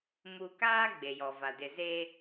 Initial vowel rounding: rounded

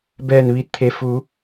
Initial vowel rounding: unrounded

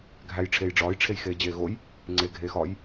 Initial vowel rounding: unrounded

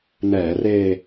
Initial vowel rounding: unrounded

